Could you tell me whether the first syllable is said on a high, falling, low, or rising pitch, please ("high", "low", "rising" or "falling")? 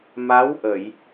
rising